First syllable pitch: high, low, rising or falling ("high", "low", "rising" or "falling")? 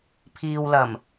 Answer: low